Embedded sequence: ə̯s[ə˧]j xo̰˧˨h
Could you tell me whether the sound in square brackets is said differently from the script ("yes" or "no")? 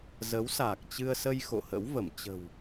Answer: no